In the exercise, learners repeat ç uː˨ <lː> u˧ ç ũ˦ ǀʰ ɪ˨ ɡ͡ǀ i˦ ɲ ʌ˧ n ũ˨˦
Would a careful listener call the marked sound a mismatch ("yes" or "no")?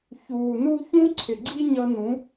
yes